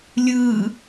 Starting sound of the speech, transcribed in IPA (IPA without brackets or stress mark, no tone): lʲ